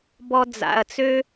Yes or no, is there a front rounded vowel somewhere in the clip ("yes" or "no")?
yes